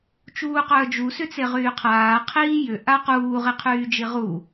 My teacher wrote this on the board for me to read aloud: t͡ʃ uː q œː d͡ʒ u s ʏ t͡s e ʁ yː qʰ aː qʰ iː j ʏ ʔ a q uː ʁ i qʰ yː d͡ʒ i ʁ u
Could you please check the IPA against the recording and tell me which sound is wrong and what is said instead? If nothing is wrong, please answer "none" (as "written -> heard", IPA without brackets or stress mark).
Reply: none